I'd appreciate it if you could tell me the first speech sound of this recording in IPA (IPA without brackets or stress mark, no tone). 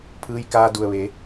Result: pʰ